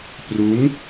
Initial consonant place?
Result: labial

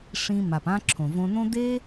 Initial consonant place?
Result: retroflex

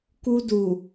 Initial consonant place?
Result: velar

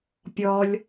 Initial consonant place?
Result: labial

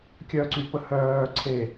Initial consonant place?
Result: velar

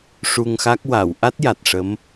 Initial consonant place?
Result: retroflex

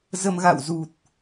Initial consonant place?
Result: alveolar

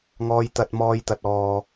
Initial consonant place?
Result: velar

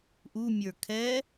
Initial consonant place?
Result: glottal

